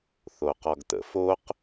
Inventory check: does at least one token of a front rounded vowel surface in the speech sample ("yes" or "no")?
no